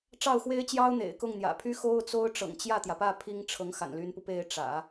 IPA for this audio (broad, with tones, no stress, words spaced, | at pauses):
ʈ͡ʂɑ˥˩ʊ̯xwe˥ɪ̯t͡ɕjɑ˥ʊ̯n̪ḛ˨˩ɪ̯ kʊ˥˩ŋn̪jä̰˨˩ pʰy˥xo˥ʊ̯t͡so˥ʊ̯ ʈ͡ʂɤ̰˨˩ŋt͡ɕjä˥˩t̪jä˩pä˥˩ pʰi˥ŋʈ͡ʂʰɤ˧˥ŋ xa̰˨˩nly˧˥npu˧ pe˥˩ɪ̯ ʈ͡ʂä̰˨˩˦